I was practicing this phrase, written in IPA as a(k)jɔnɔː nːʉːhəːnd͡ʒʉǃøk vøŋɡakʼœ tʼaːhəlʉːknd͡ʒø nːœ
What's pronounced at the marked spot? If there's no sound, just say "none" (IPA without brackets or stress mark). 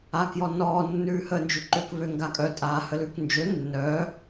k